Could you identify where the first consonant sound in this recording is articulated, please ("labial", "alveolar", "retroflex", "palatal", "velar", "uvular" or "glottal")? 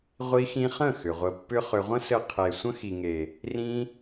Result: uvular